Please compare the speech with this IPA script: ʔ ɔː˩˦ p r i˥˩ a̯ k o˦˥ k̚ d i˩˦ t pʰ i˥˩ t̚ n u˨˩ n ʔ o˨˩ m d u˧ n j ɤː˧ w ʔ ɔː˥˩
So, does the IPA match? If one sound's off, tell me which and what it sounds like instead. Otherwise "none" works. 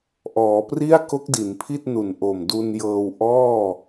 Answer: t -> n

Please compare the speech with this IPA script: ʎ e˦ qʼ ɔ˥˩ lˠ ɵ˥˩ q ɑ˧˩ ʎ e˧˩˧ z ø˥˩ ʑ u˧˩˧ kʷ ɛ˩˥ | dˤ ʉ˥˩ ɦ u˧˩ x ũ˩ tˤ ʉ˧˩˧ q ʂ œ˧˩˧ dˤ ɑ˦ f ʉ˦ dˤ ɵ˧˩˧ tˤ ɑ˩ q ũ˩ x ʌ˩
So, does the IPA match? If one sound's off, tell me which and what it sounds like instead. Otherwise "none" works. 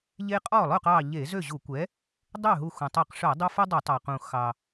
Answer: ʌ˩ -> ɑ˩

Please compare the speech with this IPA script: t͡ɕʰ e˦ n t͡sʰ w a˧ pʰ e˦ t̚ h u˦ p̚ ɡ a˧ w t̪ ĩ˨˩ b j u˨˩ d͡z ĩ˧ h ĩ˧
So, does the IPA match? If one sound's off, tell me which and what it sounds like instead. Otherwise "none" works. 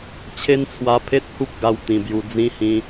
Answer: none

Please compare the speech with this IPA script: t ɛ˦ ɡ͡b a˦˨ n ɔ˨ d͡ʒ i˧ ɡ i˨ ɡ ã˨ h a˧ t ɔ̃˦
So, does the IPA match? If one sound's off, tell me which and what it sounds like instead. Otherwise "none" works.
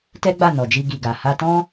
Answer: ã˨ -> a˨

